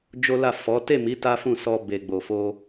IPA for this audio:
d͡ʒ o˦ l a˦˨ f ɔ˨˦ t e˦˨ m i˨˦ t a˦ f ũ˦˨ s ɔ˧ b e˨ ɡ͡b o˨ f o˧

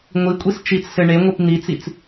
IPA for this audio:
ŋʷ i kʷʼ i s t͡ʃ i t͡s s ɘ ɳ e ŋʷ i p n̪ i t͡s i t͡s

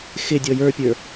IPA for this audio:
x ɪ dʲ ɔ j ə˞ pʲ ə˞

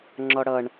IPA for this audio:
ŋ͡ǁ ɔ ɽ ʌ ɳ

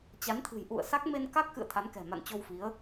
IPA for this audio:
t͡ɕ a˨˦ n t̪ʰ ɨ̤˨˩ j ʔ ṵ˧˨ ə̯ s a˦˥ k̚ m e˧ n k a˦˥ k̚ x ɨ̰˧˨ ə̯ t̪ʰ a˨˦ n k ɛ̤˨˩ m a̰˧˨ n t͡ɕ o˧ w f i˨˦ ə̯

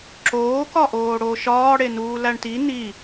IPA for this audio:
ǁ oː k ɒ ʔ oː ɽ oː ʃ ɒː ɽ e n uː l æ ɳ t i n i

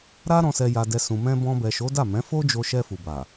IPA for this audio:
ɾ a˧ ɾ ɔ̃˨ s ɛ˨ j a˨ d ɛ˨ s ũ˨ m ɛ̃˧ b ɔ̃˧ b ɛ˨ ʃ o˨˦ d a˦˨ m ɛ̃˨˦ f o˦ d͡ʒ o˧ ʃ ɛ˧ f u˨ b a˨

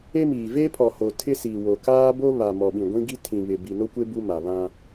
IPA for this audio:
e˦ m iː˨ v eː˦ pʰ ɔ˨ h o˨ tʰ ɪ˦ s iː˨ w o˨ k aː˦ b o˦ β a˨ m ɔ˨ ɓ ĩ˨ ɡʷ ĩ˦ ɡ i˦ tʰ ĩ˨ β ɪ˨ b i˨ n o˦ kʷ e˦ b u˦ m a˨ β ã˦

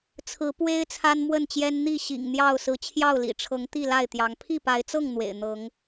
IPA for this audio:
t͡sʰ ɹ̩˨˦ p w e˦ ɪ̯ t͡sʰ a˦ n m w ə˥˨ n t͡ɕ j ɛ˦ n n̪ i˥˨ ɕ ḭ˨˩ ŋ n̪ j ɑ˥˨ ʊ̯ s ɹ̩˨˦ t͡ɕʰ j ɑ˥˨ ʊ̯ l ḭ˨˩ ʈ͡ʂʰ ɤ˨˦ ŋ t̪ i˥˨ l a˥˨ ɪ̯ t̪ j ɑ˨˦ ŋ pʰ i˥˨ p a˨˦ ɪ̯ t͡s ɤ˥˨ ŋ n̪ w ḛ˨˩ ɪ̯ n̪ ɤ˨˦ ŋ

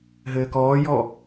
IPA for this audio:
ɦ ɘː k ɔː j ɔ

